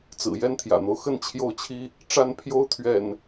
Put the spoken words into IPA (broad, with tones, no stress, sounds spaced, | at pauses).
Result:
t͡s ɹ̩˨˩ j ɛ˦ n t̪ʰ j ä̰˨˩ n̪ o˦ ʊ̯ x ə˥˨ n t͡ɕʰ j o˦ ʊ̯ t͡ɕʰ i˦ | ʈ͡ʂ a˥˨ n pʰ j o˦ ʊ̯ t̪ʰ ɥ ɛ̰˨˩ n